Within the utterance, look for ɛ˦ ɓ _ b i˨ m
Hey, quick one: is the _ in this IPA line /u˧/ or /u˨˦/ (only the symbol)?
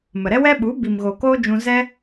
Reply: u˨˦